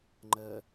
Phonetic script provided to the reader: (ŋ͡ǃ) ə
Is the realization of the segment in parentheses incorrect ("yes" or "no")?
no